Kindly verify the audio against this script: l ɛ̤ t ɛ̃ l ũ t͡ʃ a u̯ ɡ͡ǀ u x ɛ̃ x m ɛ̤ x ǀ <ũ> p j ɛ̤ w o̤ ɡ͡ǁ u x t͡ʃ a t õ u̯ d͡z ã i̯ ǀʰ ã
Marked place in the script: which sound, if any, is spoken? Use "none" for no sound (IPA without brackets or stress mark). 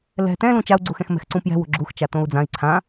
ũ